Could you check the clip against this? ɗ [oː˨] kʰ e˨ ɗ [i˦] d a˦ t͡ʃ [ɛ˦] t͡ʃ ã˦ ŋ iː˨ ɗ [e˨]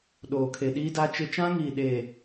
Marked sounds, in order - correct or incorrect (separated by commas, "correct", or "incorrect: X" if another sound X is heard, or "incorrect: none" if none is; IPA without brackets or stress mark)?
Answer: correct, incorrect: iː˦, incorrect: ɪ˦, incorrect: eː˨